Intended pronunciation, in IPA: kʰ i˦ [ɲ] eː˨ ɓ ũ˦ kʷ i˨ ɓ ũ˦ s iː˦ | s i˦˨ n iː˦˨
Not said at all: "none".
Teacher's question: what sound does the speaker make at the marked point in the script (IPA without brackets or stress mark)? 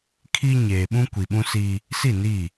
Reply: ɲ